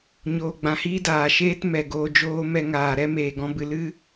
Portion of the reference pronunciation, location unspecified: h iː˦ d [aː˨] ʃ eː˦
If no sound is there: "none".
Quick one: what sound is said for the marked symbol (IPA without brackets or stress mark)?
aː˨